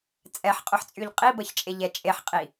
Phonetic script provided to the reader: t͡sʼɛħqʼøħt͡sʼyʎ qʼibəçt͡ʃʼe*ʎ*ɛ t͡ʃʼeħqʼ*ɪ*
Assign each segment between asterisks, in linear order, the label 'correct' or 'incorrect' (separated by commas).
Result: correct, incorrect